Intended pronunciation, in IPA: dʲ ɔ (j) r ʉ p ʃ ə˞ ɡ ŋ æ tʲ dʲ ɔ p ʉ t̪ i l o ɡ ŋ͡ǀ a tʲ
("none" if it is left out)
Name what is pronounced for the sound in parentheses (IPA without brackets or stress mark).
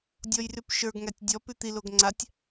j